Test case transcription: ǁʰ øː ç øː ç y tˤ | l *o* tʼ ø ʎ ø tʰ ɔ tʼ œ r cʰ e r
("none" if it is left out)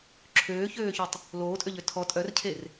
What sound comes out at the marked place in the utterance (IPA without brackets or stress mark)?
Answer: oː